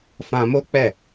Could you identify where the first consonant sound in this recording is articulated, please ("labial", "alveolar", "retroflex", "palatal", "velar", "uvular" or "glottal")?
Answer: labial